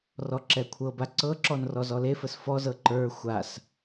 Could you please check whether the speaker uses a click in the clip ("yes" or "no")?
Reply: yes